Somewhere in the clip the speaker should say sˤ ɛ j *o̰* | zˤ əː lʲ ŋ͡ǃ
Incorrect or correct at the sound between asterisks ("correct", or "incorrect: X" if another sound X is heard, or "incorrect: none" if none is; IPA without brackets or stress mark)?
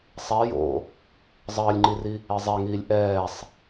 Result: correct